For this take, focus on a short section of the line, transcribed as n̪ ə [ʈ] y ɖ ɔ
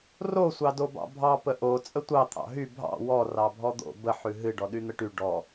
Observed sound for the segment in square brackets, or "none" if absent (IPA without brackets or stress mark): ʈ